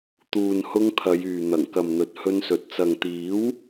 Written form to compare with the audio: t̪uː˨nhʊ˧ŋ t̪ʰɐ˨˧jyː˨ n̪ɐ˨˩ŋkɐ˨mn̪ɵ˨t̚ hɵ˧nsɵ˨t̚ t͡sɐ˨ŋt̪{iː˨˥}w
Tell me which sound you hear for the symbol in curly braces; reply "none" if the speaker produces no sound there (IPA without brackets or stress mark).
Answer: iː˨˥